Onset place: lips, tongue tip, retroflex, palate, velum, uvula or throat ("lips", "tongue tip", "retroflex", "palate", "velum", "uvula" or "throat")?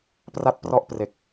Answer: lips